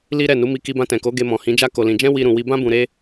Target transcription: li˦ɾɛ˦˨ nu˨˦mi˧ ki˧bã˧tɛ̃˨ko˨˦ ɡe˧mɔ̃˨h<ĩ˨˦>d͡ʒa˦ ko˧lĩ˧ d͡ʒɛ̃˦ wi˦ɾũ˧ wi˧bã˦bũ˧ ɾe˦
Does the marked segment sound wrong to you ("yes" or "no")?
no